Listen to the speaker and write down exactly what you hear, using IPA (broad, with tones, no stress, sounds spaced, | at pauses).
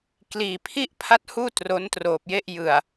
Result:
k l iː˧ pʰ i˥˩ ʔ pʰ a˦˥ t̚ h uː˥˩ t r o˦˥ n t r oː˨˩ p̚ j e˥˩ ʔ j ɯ˨˩ a̯